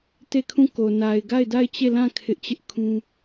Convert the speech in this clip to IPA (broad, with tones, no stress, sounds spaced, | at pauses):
t e˦˨ kʰ ũ˦˨ k o˨ n a˨ ɪ̯ ɡ a˦˨ ɪ̯ d a˦˨ ɪ̯ t͡ɕ e˦˨ l ã˦˨ kʰ ɪ˦ ʔ t͡ɕ ɪ˦ ʔ kʰ ũ˦